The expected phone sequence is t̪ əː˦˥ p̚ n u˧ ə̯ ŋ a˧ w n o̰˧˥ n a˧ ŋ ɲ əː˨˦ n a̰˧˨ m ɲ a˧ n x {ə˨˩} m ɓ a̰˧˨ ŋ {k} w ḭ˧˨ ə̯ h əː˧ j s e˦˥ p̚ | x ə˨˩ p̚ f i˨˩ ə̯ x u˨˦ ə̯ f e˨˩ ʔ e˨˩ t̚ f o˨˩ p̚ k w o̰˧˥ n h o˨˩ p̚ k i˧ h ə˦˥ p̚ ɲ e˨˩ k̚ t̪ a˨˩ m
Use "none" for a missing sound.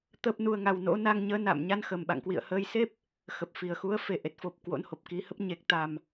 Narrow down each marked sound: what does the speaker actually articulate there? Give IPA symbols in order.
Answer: ə˨˩, k

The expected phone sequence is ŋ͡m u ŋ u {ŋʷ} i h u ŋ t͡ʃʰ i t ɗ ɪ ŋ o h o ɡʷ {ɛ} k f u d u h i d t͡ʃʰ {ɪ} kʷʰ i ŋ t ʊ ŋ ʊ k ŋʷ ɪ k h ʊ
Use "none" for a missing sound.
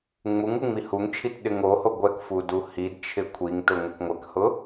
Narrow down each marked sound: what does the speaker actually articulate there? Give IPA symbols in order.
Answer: ŋ͡m, ɛ, ɪ

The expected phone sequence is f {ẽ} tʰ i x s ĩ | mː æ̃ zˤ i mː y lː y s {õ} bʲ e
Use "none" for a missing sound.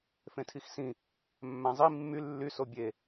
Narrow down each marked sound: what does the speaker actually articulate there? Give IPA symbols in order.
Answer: ẽ, o

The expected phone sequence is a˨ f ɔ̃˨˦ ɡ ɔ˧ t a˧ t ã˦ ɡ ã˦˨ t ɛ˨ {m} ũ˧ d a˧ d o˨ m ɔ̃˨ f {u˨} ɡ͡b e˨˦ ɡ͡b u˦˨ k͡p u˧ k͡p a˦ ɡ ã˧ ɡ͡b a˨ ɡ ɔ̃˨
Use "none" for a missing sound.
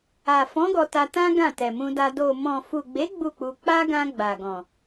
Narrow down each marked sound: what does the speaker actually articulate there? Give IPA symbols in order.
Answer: m, u˨

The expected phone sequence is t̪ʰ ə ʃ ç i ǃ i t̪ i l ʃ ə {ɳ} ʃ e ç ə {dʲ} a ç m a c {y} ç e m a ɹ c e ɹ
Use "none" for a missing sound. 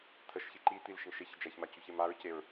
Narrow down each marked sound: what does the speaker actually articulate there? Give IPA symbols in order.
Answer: ɳ, d͡ʒ, y

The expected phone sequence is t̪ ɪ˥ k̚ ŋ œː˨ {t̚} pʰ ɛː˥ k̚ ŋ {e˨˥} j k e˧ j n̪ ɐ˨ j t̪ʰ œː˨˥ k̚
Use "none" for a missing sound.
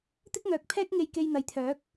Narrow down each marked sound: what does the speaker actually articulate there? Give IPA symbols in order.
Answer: k̚, e˧

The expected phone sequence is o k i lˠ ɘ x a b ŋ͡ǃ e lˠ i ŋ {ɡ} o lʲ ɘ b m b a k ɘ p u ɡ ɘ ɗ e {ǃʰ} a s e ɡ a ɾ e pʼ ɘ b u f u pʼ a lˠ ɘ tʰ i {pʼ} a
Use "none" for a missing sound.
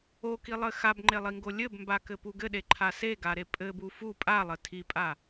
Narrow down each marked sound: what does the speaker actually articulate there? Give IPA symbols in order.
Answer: ɡ, ǃʰ, pʼ

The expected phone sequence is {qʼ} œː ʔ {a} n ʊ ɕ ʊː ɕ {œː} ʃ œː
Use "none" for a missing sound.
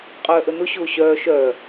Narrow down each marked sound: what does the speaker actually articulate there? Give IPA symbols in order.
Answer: qʼ, ə, œː

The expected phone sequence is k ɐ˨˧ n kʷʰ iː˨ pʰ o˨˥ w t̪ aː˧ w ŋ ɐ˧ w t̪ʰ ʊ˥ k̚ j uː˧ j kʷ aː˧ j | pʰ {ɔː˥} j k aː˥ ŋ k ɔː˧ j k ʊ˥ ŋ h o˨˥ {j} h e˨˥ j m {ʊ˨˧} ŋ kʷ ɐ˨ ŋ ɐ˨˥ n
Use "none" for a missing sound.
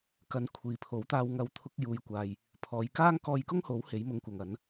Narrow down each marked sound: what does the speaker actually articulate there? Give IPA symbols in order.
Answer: ɔː˨˧, w, ʊ˨˥

